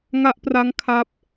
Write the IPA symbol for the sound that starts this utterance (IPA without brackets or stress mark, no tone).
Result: ŋ